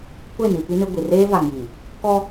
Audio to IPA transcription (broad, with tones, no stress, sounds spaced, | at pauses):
kʷ e˦˨ n i˨ p i˦ n ɪ˦ ɡʷ i˨ r eː˦ v a˨ ŋ j i˨ | k ɔ˦